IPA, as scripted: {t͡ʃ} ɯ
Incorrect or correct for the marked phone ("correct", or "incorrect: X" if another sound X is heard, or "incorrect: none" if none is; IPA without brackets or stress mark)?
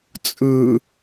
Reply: incorrect: t͡sʼ